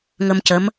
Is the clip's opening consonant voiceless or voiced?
voiced